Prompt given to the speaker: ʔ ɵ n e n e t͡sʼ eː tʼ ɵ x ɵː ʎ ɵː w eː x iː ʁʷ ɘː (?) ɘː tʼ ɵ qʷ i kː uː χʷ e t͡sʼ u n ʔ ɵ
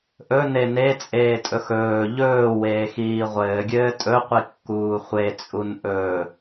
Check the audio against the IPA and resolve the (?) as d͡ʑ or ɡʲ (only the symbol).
ɡʲ